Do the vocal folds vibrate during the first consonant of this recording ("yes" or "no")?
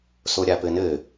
no